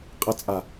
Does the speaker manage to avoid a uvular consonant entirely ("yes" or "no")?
no